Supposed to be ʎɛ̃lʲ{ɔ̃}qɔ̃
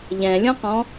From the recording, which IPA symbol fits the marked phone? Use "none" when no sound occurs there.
ɔ̃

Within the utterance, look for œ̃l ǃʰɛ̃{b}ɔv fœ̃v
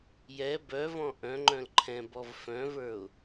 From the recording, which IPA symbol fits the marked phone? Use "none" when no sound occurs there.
b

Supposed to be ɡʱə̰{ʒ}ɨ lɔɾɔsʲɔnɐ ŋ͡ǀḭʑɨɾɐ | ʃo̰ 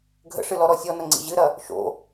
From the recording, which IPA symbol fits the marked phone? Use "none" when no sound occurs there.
ʂ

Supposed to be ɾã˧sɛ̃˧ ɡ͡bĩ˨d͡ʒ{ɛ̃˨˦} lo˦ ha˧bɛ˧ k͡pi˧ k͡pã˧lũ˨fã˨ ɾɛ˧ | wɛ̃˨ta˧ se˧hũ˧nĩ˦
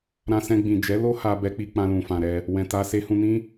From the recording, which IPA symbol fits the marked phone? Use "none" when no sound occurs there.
ɛ˨˦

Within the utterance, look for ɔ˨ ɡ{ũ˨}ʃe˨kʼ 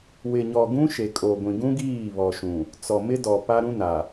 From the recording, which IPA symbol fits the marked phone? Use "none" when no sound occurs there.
ũ˦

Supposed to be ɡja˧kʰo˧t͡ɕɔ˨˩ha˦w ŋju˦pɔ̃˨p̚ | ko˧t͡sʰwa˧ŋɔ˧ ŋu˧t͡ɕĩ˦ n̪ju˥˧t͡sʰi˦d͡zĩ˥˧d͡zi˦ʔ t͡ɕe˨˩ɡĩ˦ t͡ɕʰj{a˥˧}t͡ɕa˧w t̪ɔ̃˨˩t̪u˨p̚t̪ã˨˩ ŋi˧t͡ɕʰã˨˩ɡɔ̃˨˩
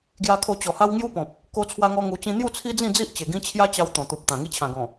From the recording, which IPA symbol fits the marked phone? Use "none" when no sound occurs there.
a˦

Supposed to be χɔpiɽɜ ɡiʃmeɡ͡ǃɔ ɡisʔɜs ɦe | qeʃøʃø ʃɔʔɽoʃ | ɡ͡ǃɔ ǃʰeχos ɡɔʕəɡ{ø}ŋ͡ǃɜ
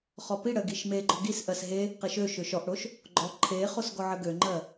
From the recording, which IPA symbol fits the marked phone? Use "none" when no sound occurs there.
ø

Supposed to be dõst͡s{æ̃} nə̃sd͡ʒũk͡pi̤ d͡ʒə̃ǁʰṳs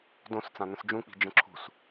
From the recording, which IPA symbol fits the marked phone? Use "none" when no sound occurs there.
ã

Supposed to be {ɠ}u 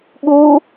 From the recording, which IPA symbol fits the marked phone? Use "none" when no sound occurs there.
ɠ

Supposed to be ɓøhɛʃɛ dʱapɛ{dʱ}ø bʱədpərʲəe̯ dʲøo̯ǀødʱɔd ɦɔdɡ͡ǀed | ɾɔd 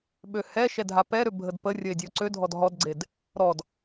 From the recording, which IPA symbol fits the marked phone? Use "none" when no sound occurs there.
ɾ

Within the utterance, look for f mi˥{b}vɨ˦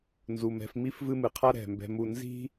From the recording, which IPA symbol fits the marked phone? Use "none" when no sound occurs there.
f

